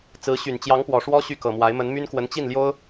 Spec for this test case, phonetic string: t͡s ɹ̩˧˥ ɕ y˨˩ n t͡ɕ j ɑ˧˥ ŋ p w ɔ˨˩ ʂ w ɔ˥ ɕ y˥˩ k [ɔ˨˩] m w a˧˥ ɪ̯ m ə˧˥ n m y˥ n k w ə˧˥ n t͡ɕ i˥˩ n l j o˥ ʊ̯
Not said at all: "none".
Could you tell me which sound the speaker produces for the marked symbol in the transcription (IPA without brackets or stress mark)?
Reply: ɤ˨˩